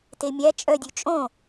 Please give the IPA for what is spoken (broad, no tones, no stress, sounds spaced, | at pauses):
t e mʲ æ t͡ʃʼ œ dʲ ʉ t͡ʃʼ õ